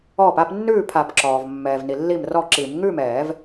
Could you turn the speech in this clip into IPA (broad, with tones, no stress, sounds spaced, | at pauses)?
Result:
ɔː˧˩ p a˥˨ p nː ʉː˥˨ pʰ a˨˩˦ p ǁ ɔː˩ v mː ɛː˩ v n i˩ lː i˥˨ m r ɔ˥˨ ǁ i˨˩˦ m ŋ ʉː˥˨ m ɛː˨˩˦ v